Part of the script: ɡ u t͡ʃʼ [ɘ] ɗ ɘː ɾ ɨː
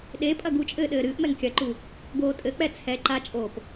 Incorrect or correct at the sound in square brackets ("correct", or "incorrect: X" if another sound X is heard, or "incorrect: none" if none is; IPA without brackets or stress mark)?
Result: incorrect: ɘː